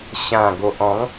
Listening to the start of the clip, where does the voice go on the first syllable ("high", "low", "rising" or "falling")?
low